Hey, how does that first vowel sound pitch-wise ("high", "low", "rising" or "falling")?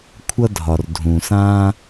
high